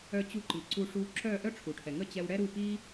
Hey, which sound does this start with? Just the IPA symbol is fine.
œ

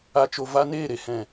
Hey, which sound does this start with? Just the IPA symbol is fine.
a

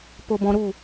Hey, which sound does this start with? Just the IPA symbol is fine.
p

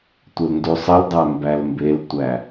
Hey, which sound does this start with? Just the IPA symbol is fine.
tʷ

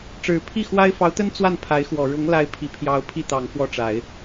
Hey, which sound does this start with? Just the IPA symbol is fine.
ʈ͡ʂ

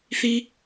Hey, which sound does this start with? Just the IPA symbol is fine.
θ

